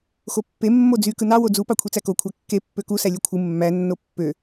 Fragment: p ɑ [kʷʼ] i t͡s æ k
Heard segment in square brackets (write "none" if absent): kʷʰ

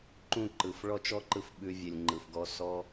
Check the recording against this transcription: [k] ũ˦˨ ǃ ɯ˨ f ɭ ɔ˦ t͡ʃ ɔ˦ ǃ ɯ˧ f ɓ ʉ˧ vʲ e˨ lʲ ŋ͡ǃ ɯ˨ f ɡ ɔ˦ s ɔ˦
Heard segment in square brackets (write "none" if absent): ǃ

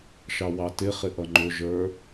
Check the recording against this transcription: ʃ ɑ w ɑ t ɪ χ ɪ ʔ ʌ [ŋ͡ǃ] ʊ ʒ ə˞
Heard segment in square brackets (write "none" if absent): ŋ͡ǃ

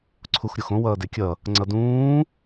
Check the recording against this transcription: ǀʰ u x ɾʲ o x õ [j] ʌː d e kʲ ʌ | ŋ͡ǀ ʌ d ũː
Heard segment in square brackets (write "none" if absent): w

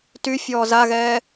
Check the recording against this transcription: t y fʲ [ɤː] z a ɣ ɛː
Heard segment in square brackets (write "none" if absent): ɔː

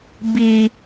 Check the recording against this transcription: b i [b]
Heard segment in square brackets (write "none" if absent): none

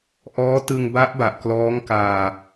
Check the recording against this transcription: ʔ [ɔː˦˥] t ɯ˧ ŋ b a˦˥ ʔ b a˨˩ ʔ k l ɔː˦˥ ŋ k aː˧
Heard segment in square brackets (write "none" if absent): ɔː˦˥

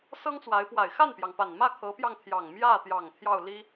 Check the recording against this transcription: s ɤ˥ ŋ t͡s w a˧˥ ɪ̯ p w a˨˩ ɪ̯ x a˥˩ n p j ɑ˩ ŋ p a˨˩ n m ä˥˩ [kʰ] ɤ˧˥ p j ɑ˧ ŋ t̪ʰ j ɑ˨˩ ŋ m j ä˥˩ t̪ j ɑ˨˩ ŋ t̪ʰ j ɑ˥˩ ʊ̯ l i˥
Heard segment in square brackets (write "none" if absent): kʰ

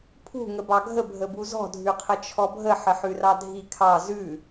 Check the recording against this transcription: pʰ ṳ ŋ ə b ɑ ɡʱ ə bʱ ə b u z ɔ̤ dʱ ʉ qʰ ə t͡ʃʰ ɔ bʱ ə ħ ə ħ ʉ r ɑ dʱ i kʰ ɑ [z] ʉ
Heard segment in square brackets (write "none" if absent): z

